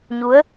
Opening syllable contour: rising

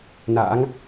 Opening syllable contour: rising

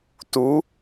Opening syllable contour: rising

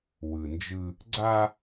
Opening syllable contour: low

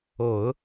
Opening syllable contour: low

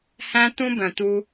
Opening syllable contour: high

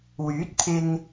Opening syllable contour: rising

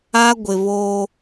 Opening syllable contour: high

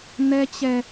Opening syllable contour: high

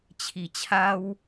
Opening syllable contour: low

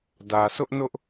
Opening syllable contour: low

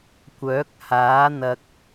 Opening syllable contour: rising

